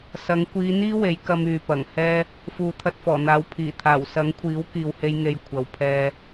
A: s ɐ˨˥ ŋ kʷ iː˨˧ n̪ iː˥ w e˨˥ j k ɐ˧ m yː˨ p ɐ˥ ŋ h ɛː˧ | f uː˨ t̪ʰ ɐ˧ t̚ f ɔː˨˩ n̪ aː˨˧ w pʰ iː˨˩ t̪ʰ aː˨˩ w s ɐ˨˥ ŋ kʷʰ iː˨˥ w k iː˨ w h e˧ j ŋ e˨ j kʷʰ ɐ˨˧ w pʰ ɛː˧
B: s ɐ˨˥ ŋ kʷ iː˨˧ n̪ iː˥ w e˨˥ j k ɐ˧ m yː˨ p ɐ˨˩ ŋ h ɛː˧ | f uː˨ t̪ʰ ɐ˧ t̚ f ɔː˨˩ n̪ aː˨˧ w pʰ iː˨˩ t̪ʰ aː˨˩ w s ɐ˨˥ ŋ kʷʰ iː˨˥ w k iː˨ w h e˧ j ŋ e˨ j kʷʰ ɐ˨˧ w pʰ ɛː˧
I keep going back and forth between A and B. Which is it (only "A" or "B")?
B